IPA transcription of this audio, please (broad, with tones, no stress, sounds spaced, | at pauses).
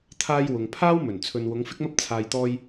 t̪ʰ aː˧ j w ʊ˨ ŋ pʰ aː˥ w m ɵ˨˩ n t͡sʰ ɵ˨ n w ʊ˨˧ ŋ f ɪ˥ k̚ m ɐ˥ p̚ t͡sʰ aː˨ j t̪ ɔː˧ j